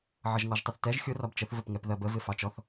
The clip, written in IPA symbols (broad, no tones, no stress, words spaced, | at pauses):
ʕʌʒŋɔʒtˤɪθtɛʒ xʲʊ rɒbt͡ʃəθ vəpŋɛpðɜbə vɪfɑt͡ʃɔθ